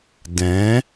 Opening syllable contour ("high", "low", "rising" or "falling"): rising